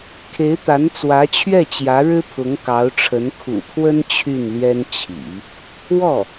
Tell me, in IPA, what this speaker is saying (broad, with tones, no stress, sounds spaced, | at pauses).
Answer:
kʰ e˧˥ ɪ̯ t̪ a˧˥ n t͡s w ä˧˥ t͡ɕʰ ɥ ɛ˥˩ t͡ɕ j ä˧˥ ɻ ɻ̩˥ pʰ ʊ˧˥ ŋ k ɑ˧˥ ʊ̯ ʈ͡ʂʰ ə˧˥ n kʰ ṵ˨˩ pʰ w ə˥ n t͡ɕʰ y˥˩ n l ɥ ɛ˥ n t͡ɕʰ ḭ˨˩˦ | w ɔ˥˩